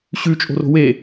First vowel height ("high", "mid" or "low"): high